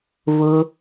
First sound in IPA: β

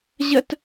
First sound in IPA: ʑ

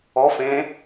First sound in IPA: ɔ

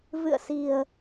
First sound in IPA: v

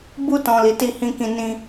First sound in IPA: b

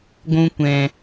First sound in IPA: ɡʷ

